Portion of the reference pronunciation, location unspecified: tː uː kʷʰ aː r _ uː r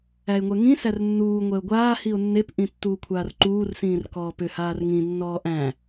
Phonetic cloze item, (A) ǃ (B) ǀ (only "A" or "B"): A